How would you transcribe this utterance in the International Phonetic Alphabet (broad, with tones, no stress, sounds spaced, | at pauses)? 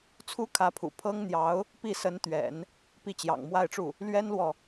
t͡sʰ u˥ kʰ ä˧˥ pʰ ṵ˨˩ pʰ ɤ˥ ŋ n̪ j ɑ˧˥ ʊ̯ | p i˥˩ s ə˧˥ n t̪ ɥ ɛ̰˨˩˦ n | p i˥˩ t͡ɕ j ɑ̰˨˩ ŋ m w a˥˧ ɪ̯ ʈ͡ʂ u˥˩ | l ɥ ɛ˥ n l w ɔ˨